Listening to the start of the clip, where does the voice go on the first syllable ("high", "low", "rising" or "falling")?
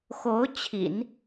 rising